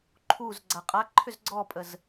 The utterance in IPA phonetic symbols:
ǃʰ u z ɡ͡ǀ a qʼ a ǃʰ ʏ z ɡ͡ǀ ɔ pʼ ə z

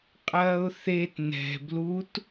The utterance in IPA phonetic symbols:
qʼ ɐː ʊ̯ θ e t n ɛ̤ b l u t

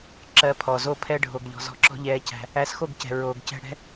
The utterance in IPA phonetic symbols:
ǁ ɜ˧ pʰ ɔ˨ z o˧ pʰ ɛ˧ ɖʱ o˨ ɡ ʎ ɔ̤˨ z ɔ̤˧ ǁ ɔ̤˦ ʎ ɛː˧ c æ̤˧ | æ˧ s x o˦˨ ɡ c ɛ̤˨ ɹ oː˨ ɡ c ɛ̤˧ ɽ ɛ̤˦

